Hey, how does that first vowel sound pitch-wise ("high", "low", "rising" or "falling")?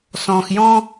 low